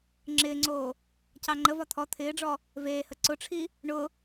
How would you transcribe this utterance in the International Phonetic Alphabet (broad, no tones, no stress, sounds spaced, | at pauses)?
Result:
ŋ͡ǁ ɪː ŋ͡ǀ oː | c ɑ ŋ͡ǃ ə v ɒ t̪ʰ ɔ t̪ʰ ɪː ɖ͡ʐ ɔ | v eː h ə ǀ ʊ ʈ͡ʂʰ i | ɳ ʊ